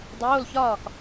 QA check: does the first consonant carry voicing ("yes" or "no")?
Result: yes